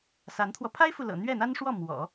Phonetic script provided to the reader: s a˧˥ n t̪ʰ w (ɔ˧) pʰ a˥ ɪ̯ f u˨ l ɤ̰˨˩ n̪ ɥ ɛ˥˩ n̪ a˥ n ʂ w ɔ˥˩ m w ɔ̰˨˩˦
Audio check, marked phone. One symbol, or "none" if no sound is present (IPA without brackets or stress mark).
ɔ˧